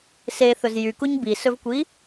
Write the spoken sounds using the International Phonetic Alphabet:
s e θ ɵ z j y k u ɲ b i s ɵ v kʷ i

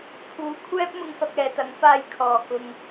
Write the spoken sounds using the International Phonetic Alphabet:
pʰ uː˨˥ kʷʰ ɛː˥ p̚ m ʊ˧ ŋ f ɐ˧ k̚ ɛː˨ t̪ ɐ˨˥ ŋ f aː˧ j kʰ ɔː˨ k ʊ˧ ŋ

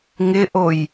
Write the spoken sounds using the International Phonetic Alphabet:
ŋ ɪ ʔ o j

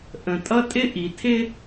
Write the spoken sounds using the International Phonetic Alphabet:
ʔ ə̃˩ tʼ ʌ˥ tʼ ɪ˥ ʔ i˩ tʰ ɪ˥

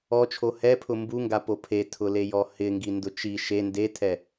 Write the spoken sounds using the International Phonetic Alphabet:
ɔ t͡ʃʰ o h ɛ pʰ ʊ m b u ŋ ɡ a p o pʰ e tʰ ʊ l e j ɔ h ɪ ŋ ɡ i n d ʊ t͡ʃ i ʃ e n d e tʰ ɛ

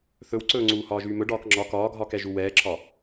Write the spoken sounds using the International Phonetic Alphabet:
θ ɵ w ǀ ɵː ŋ͡ǀ uː h ɒː ʒ yː m ɵ ɖ ɒː k ŋ͡ǁ ɒ k ɒː ɡʱ ɒː k ɛ ʒ u w ɛː ǁʰ ɒ

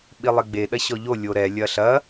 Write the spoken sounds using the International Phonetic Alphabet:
ɓ i lˠ e ɡ͡b e ɗ ɐ ɕ ɔ ʎ o lʲ o ɾ ɛ lʲ ɐ ɬ ɐ

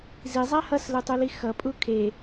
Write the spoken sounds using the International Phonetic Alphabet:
z i zˤ a h ʌ s l ɯ tˤ u l i x ʌ pʼ u kʰ e

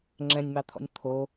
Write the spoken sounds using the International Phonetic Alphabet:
ŋ͡ǁ ɛ̃ nʲ m ɑ t̪ʰ ɔ̰ nʲ t̪ʰ o

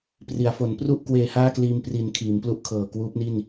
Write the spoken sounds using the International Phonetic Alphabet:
p r i˩˦ a̯ f o˩˦ n p r u˥˩ ʔ k w eː˧ h aː˥˩ k l iː˧ m p r i˩˦ n kʰ iː˩˦ m p l u˦˥ ʔ kʰ ɤː˨˩ k w uː˦˥ p̚ n i˥˩ n

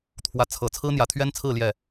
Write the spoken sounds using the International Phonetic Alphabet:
t̪ʰ w ä˧˥ t͡sʰ ɤ˨˩ t͡sʰ ɹ̩˥ n̪ j ä˨˩ t̪ʰ ɥ ɛ˥ n t͡sʰ ɹ̩˥˧ l j ɛ˥˩

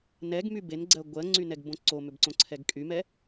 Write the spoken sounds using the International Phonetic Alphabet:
n ɛ ɡ m y b e n ɡ͡ǀ ɜ ɡʷ ɜ ŋ͡ǀ y n ɛ ɡ b õ ǀ o m ʏ b ǀ õ ǀʰ ɛ ɡ kʼ y m ɛ

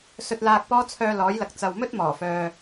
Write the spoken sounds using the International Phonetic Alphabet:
s ɵ˧ t̚ l aː˧ k̚ p ɔː˥ t͡sʰ œː˧ l ɔː˨˥ j l ɐ˨ k̚ t͡s ɐ˨ w m ɵ˥ t̚ m ɔː˨˩ f œː˨

